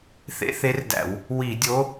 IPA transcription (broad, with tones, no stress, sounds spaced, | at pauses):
θ ḛ˧˥ θ e˧˥ r d æ̰˧˩˧ w | w i˧˩˧ dʲ o˧˥